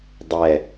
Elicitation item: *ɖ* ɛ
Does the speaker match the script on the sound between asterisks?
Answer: no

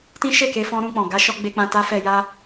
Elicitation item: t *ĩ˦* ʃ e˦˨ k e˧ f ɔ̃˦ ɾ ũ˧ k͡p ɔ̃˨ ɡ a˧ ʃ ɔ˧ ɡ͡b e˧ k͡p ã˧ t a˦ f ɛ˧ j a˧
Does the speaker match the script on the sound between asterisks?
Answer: yes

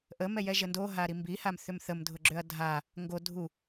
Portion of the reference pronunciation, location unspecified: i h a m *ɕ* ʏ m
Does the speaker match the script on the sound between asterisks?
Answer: no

